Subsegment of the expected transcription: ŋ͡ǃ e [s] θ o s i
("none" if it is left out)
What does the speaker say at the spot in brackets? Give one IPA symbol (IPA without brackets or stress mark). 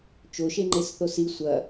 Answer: s